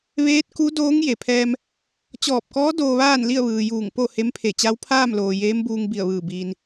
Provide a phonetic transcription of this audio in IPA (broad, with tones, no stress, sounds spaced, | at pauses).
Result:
ʋ eː˧˥ t̚ k u˧˥ d oː˧˥ ŋ j e˩ pʰ ɛː˧ m | t͡ɕ ɔː˧˩ p̚ k ɔː˧˥ d oː˧ ʋ aː˥˨ n l i˥˨ ə̯ ʋ ɯː˩ j uː˧˩ ŋ p o˥˨ h e˧˥ m pʰ e˧˩ t͡ɕ a˧˥ w pʰ aː˥˨ m l oː˩ j eː˧˥ m b uː˧ ŋ b i˧˩ ə̯ ʋ ɯː˧˩ b iː˩ n